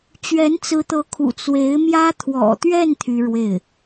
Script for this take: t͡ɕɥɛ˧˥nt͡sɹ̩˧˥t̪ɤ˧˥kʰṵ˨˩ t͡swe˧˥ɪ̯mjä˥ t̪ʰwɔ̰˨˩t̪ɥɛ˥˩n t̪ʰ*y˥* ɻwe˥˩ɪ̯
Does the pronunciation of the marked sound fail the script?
no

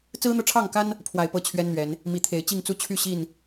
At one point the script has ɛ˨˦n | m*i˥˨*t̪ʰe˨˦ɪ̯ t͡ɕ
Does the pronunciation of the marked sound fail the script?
yes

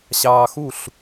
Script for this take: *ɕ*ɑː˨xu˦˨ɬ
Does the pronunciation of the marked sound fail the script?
no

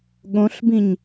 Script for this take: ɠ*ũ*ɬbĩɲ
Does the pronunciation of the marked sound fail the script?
yes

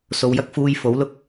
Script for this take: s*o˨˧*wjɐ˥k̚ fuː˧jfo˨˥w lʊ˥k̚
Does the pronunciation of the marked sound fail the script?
no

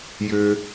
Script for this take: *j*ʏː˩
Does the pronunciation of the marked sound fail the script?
no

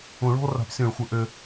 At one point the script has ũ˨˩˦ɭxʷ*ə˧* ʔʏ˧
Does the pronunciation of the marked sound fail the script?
yes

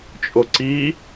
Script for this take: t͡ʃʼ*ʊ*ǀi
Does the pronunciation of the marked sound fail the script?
no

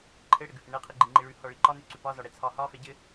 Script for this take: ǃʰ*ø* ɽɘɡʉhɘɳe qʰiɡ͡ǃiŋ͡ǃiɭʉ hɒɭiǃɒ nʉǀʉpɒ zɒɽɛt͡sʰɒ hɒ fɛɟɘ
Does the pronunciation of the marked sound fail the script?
yes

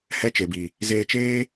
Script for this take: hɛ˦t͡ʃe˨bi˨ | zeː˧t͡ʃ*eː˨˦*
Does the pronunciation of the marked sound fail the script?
yes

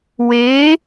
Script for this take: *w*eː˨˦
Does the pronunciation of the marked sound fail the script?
no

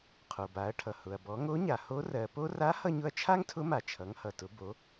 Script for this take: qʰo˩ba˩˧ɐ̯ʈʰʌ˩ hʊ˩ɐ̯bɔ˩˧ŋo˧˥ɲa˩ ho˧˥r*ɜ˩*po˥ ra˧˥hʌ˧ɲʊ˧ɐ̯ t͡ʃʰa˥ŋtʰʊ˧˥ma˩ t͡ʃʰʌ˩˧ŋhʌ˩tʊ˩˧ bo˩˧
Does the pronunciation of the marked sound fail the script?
no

